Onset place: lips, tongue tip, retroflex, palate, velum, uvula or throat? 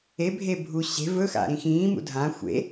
lips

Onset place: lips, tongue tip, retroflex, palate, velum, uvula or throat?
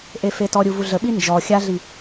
throat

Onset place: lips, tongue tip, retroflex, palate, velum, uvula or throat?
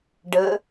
retroflex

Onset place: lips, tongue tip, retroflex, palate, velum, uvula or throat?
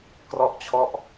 velum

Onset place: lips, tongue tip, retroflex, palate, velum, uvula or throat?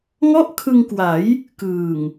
velum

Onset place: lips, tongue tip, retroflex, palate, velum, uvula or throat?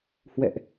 throat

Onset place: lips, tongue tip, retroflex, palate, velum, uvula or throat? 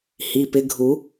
throat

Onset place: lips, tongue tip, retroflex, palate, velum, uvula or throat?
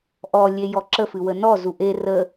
throat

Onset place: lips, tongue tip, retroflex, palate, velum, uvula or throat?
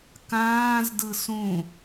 velum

